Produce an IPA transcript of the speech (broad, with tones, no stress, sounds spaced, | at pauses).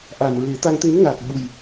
ʔ a˨˩ n ɹ e˨˩˦ t̪ a˧ ŋ t̪ e˧˥ n ŋ aː˨˩ k̚ ɓ u˨˩ j